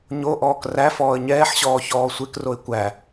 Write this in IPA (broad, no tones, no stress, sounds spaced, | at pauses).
ɲ o ʔ ɔː k r æ f ɔː ə̯ ɲ ɛː ħ ɕ ɔː ç ɔː sʷ e k r o ɪ̯ kʷ æ